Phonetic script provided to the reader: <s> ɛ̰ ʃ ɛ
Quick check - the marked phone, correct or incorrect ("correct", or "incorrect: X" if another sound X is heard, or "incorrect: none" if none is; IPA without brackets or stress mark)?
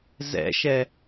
incorrect: z